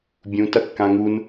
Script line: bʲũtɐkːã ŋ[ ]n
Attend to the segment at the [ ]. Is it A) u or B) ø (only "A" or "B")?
A